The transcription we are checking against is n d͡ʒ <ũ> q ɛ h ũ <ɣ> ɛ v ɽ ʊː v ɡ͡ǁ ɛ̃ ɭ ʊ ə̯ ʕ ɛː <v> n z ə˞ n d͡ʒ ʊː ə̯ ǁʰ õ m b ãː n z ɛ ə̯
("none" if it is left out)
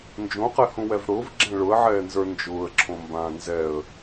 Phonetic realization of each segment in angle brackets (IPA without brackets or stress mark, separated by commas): õ, w, none